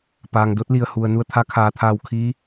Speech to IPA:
paː˩ŋdo˧˥t̚li˩ə̯hu˩ə̯ nu˧˩ə̯t̪ʰa˧˥kʰaː˩t̪ʰaː˧˩w kʰiː˧˥

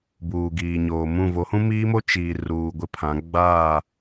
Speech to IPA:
buː˨ɡiː˨ɲoː˨mũ˦˨ vo˨˦hũ˦miː˦mo˦ t͡ʃiː˨ ruː˨ɡʷɪ˦pʰã˨˦ ɡ͡baː˦˨

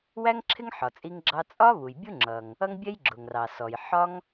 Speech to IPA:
wæ˥ŋǁʰɪ˥ŋħɒ˩ t͡sʼi˥ŋɡ͡ǁɑ˥ t͡sʼɒ˥ βu˩jbʲu˥ŋ͡ǁʌ˩ŋ | ʌ˥ŋbʲɛ˥j ɡ͡ǁʊ˩ŋrɑ˩sɔ˩j ħɒ˥ŋ

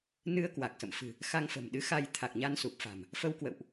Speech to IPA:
nɨ˧ə̯kwa˨˩k̚sə̰˧˨mfɨ̤˨˩ | xa˧ŋfə̤˨˩mɗɨ˨˦xa˧j t̪ʰa˨˩k̚ɲa˧nsu˨˩p̚fa̤˨˩m | fə˧wkwə̰˧˨wʔ

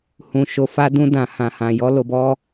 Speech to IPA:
hũ˨ ʃo˨fa˧dũ˧ dã˨hã˨hã˨jɔ˧ lo˨bɔ˧

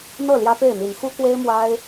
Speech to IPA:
n̪ɤ˥˨ ljä˦pe˥˨ɪ̯n̪i˨˦n xu˦kwe˦ɪ̯ mwa˦ɪ̯

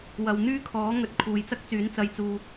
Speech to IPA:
wɐ˨w n̪yː˥kʰɔː˨˥ŋɵ˨˥t̚ kʰuː˨jt͡sɐ˥k̚t͡syː˨˥n t͡sɐ˨jt͡suː˨

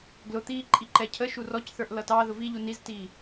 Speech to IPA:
ɡlʊt̪iː ǃʼiǃɛcʰəʃu rɔcθə˞ʔ lʌtɑðʊ viʎu niztiː

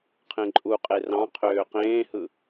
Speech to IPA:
qʰẽǃʼuqʼe rɑ̃ qʰøːqẽːhɯ

